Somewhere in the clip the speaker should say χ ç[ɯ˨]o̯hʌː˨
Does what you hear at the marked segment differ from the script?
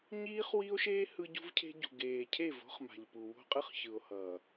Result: no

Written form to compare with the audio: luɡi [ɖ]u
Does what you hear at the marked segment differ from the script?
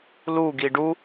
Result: no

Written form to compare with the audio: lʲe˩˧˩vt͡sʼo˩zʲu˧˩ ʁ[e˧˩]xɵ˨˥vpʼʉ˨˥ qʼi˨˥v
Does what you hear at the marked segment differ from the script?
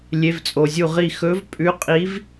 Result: yes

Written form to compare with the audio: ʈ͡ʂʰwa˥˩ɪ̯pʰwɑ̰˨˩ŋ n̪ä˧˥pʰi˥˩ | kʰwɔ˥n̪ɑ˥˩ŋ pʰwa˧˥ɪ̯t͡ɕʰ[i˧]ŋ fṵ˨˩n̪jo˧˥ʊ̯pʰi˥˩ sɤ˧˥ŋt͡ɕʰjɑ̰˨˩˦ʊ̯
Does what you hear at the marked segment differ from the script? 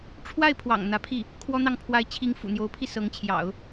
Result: yes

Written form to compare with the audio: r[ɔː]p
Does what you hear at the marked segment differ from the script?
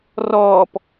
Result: no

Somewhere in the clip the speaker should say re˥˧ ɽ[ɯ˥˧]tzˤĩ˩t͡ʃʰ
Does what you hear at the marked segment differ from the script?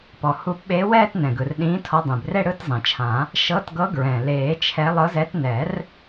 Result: no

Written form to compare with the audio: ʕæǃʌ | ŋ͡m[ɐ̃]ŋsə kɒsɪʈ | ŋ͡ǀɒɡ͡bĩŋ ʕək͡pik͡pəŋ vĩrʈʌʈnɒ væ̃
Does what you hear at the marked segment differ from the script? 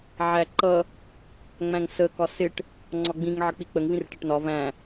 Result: yes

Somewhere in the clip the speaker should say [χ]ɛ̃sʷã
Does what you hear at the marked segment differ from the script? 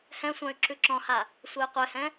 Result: yes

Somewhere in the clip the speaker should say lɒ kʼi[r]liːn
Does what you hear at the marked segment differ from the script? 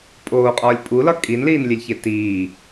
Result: yes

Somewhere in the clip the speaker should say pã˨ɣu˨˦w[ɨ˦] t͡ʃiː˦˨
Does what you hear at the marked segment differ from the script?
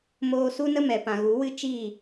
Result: no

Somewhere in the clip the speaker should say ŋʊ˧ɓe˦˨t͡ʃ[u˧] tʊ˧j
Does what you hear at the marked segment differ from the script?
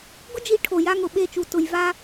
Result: no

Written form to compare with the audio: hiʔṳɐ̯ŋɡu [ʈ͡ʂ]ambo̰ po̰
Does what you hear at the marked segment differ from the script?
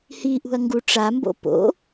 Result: no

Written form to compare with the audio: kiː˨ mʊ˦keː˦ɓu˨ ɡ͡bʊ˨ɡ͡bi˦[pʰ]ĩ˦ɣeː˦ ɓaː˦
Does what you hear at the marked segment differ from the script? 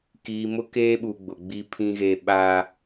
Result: no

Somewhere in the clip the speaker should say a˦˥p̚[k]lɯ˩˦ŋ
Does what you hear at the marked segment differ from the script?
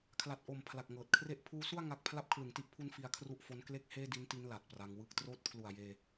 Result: yes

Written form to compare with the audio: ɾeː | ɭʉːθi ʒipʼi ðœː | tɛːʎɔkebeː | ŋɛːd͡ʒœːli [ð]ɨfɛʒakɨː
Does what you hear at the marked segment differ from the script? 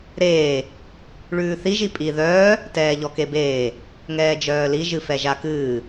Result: yes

